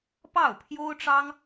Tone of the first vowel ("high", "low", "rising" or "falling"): falling